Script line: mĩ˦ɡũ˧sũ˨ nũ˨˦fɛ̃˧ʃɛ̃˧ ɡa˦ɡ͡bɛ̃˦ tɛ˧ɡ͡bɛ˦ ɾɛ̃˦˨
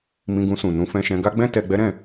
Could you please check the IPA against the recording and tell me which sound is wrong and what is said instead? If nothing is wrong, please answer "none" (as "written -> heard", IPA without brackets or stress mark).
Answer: ĩ˦ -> ĩ˧